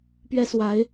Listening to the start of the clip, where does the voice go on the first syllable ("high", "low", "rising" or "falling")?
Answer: high